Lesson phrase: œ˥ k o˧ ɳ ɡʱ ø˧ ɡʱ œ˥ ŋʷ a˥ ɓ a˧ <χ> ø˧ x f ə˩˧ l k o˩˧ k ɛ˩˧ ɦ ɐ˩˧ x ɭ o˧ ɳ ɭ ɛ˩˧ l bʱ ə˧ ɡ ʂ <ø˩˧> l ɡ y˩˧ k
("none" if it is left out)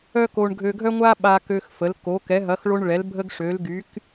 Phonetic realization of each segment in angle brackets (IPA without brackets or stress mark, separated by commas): k, ø˩˧